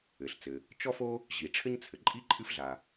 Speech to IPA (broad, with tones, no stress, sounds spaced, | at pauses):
ɘ˩ ɬ t͡s ɘ˩ | t͡ʃ ɔ˥ f o˥ | ʑ i˩ ʈ͡ʂʰ ɘ˥ ɲ t͡sʰ ɘ˩ ǃʼ i˥ ǃʼ ɨ˥ f ɮ a˩